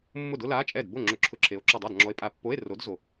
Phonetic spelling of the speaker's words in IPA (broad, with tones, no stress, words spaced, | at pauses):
mːʊ˥˩dʊ˥la˧˥˧t͡ʃʼɛ˥˩d bo˥˩ŋ͡ǁʊ˧˩˧ ǁʰʊ˧˥˧ǁʰe˨˥o̯ ǁɔ˧˩dˤa˥˩dŋ͡ǁɔ˨˥e̯pʼa˨˥ pːo˧˥˧e̯ro˨˥dzo˧˩